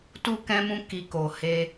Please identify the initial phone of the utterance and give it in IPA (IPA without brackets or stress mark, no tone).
t